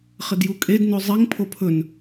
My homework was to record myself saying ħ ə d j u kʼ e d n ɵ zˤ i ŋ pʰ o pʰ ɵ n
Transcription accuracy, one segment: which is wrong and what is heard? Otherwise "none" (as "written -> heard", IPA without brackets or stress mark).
ħ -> χ